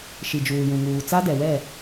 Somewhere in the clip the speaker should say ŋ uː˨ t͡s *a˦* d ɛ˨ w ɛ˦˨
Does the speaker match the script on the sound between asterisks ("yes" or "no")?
yes